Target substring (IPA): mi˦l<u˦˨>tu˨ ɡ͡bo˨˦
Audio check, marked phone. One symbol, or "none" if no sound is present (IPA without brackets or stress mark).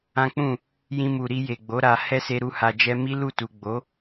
u˦˨